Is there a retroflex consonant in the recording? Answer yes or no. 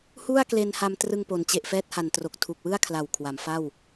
no